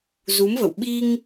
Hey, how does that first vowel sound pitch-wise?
rising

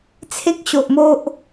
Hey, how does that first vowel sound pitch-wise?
high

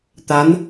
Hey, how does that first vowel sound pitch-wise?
rising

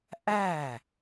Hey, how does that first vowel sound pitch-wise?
falling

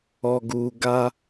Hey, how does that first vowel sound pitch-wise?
low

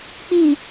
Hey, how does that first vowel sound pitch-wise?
low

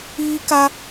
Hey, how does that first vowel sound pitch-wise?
high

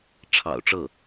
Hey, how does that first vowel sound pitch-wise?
low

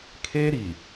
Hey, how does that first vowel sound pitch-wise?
high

